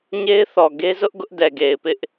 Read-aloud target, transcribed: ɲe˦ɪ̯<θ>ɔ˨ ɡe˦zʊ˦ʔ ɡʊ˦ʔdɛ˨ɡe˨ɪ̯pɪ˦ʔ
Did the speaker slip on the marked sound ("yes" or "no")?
no